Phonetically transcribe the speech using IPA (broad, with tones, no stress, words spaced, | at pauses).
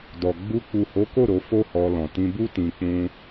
dɔ˨ɡ͡bu˧ k͡pu˨ho˨˦ko˦˨ ɾo˧fo˦hɔ˧lɔ̃˨ tĩ˧bu˦ tĩ˧k͡pũ˦